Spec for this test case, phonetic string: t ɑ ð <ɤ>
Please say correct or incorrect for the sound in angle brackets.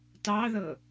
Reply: correct